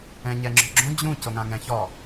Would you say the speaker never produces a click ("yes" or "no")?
no